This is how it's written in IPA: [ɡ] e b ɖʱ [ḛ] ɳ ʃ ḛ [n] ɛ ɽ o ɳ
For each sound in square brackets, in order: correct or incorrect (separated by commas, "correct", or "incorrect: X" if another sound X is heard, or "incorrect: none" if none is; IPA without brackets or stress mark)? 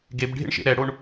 correct, correct, incorrect: ɾ